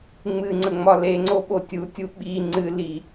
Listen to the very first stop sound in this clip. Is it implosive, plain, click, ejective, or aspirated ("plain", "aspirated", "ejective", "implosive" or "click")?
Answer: click